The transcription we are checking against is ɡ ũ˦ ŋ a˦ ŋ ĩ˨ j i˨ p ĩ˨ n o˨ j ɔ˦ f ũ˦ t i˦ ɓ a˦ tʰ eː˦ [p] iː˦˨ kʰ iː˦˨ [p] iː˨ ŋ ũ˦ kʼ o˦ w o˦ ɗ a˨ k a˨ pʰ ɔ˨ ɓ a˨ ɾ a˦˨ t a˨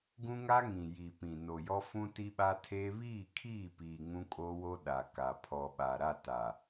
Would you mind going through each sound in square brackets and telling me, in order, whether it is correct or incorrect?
incorrect: β, correct

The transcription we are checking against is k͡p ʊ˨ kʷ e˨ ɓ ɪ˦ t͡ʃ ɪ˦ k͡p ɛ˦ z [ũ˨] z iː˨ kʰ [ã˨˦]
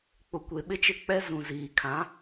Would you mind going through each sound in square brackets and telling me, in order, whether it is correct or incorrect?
correct, correct

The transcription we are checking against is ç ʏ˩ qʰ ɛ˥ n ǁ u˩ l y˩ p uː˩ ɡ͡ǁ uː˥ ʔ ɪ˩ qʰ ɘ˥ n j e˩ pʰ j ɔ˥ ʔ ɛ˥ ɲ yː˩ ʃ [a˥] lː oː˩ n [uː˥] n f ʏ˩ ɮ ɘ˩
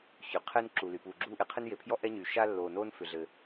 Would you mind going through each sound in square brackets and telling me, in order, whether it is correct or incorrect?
correct, incorrect: oː˥

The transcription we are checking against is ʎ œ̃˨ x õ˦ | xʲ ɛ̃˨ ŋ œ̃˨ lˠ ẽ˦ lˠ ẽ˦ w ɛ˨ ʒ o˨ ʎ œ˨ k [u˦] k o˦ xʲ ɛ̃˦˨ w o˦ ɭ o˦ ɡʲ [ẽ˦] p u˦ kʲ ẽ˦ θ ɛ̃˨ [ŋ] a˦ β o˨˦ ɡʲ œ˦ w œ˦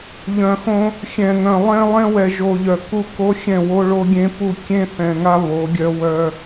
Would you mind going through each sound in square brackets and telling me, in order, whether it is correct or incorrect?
correct, correct, correct

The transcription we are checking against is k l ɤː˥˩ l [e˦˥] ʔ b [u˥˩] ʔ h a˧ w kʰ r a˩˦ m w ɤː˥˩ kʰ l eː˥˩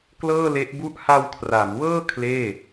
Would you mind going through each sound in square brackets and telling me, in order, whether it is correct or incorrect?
correct, correct

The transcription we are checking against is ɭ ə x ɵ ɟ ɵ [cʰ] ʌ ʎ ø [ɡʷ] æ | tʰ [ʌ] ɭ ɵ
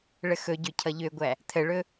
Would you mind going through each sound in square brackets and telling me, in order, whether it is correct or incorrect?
correct, correct, incorrect: ə

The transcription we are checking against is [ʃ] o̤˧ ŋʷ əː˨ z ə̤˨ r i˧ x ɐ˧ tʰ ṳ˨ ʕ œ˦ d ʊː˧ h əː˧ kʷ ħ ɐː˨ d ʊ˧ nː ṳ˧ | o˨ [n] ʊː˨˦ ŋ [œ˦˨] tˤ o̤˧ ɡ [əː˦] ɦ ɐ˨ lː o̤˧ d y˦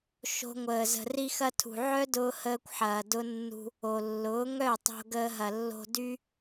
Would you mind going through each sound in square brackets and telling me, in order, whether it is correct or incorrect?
correct, incorrect: lː, correct, incorrect: əː˧

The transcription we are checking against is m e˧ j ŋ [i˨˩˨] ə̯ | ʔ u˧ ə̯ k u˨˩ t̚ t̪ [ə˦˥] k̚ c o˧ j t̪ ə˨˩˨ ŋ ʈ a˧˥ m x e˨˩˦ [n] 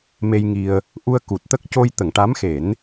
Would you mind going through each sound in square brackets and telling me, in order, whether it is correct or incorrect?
incorrect: i˧, correct, correct

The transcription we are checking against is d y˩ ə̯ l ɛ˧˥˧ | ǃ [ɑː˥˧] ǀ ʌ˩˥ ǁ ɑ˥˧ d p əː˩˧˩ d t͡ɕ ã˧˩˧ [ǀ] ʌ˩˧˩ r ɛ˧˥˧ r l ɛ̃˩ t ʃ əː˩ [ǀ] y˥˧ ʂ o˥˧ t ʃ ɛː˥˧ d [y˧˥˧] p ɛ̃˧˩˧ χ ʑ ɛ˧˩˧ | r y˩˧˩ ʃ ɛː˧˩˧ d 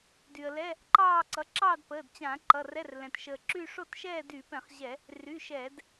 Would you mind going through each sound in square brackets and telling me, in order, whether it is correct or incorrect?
correct, incorrect: ǃ, incorrect: ǁ, incorrect: y˧˩˧

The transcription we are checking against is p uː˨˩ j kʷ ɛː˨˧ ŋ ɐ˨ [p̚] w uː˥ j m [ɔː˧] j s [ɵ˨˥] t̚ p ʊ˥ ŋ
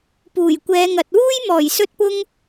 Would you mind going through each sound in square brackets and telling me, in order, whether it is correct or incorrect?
incorrect: t̚, incorrect: ɔː˨˩, incorrect: ɵ˥

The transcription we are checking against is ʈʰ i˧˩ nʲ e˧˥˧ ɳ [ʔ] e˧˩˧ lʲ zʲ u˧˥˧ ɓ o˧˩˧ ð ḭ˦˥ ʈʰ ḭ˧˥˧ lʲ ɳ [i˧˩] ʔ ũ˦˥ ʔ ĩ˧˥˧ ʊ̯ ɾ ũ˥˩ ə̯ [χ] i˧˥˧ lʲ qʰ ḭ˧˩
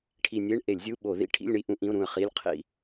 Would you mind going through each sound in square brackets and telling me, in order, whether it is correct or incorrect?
correct, incorrect: i˥˧, correct

